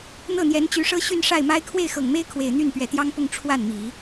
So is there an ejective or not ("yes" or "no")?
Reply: no